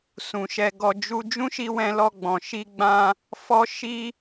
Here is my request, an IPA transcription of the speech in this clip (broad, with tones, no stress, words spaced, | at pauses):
sũ˨ʃɛ˧ɡɔ˧ d͡ʒu˧ d͡ʒũ˦ʃi˧wɛ̃˧ lɔ˧ɡ͡bɔ̃˨ ʃi˧ɡ͡bã˧ | fɔ˧ʃi˧